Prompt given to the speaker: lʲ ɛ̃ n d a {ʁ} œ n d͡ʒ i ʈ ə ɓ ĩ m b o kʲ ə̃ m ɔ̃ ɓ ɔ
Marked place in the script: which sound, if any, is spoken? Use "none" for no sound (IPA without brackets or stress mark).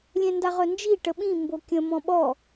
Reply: ʁ